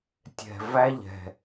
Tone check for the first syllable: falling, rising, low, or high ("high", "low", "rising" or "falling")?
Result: low